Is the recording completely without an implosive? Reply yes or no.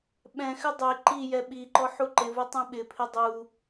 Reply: no